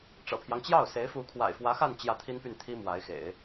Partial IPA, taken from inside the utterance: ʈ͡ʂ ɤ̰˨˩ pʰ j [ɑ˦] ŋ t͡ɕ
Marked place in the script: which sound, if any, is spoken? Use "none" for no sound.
ɑ˦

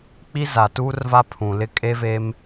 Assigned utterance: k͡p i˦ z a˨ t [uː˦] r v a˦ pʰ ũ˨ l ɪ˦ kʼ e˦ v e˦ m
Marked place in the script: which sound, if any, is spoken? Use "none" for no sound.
uː˦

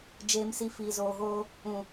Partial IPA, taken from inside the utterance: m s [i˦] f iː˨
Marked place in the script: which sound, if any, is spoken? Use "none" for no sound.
i˧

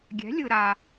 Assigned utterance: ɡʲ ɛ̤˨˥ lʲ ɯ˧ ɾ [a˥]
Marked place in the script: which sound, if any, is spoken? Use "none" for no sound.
a˧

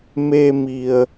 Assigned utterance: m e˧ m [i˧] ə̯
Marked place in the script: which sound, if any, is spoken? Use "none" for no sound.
i˧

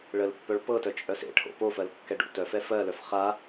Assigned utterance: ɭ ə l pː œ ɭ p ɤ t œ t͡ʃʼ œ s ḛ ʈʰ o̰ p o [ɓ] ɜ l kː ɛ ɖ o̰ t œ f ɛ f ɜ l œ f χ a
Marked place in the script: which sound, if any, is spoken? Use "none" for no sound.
f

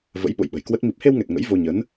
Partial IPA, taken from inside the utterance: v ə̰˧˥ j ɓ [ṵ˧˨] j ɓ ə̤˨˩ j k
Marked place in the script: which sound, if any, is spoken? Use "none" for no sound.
o̰˧˨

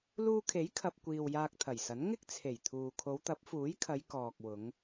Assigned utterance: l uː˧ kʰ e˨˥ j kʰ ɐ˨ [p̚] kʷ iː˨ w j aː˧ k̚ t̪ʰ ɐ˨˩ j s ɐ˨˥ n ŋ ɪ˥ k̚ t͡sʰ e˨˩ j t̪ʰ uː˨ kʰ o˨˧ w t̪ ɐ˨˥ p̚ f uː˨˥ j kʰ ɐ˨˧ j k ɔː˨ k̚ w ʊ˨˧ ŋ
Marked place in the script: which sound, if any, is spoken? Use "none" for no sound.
p̚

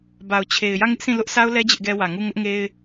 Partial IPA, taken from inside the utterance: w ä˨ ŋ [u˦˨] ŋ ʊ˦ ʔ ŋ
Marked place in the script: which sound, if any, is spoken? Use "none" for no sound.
u˦˨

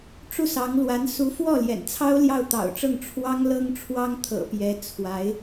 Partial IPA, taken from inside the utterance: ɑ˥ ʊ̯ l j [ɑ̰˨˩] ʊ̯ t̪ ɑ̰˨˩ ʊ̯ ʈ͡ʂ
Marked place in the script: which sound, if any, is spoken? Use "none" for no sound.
ɑ˥˩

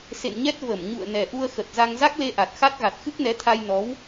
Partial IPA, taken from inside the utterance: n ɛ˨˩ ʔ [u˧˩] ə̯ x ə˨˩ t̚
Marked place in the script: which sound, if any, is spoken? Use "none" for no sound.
u˧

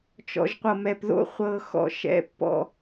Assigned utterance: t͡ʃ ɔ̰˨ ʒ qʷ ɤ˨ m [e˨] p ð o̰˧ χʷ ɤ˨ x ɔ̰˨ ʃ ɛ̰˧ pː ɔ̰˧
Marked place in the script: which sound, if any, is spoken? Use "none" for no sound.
ɛ˨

